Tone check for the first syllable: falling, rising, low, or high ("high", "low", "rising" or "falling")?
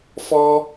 high